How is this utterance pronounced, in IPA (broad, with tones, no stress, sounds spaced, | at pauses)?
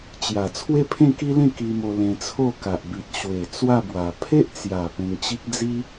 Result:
t͡ɕ j a˨˩ t͡sʰ w e˦ pʰ ẽ˥˧ k i˦ l ẽ˥˧ k i˧ m o˧ l ẽ˧ t͡sʰ o˥˧ k a˨ ʔ b i˨ t̚ ɕ w e˨˩ t͡s w a˥˧ b w a˨˩ pʰ e˦ ʔ t͡s j a˨˩ p ẽ˧ ŋ t͡ɕ i˦ k̚ d͡z i˦